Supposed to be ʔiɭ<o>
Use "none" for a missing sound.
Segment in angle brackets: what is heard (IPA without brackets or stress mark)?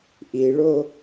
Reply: o